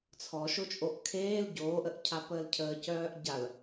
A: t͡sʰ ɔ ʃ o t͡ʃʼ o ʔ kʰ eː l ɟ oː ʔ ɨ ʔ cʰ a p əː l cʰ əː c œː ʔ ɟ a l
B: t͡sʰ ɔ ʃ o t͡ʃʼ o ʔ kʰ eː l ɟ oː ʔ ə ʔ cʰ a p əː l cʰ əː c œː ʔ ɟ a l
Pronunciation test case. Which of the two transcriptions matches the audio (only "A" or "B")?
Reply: B